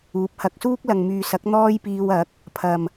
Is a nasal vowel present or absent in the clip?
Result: absent